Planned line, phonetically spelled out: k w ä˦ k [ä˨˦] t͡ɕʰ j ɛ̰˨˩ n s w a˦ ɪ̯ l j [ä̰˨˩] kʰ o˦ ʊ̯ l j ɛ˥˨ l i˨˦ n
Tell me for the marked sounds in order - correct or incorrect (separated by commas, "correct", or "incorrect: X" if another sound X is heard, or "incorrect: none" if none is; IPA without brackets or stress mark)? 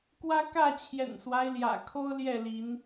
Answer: incorrect: ä˥˨, correct